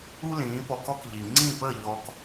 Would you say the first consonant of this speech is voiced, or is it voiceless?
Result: voiced